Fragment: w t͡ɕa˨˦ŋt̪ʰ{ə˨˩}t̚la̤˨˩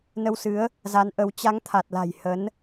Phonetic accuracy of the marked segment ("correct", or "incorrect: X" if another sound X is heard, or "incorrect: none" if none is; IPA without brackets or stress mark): incorrect: a˨˩